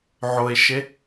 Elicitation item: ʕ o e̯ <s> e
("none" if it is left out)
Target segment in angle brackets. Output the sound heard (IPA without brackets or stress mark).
ʃ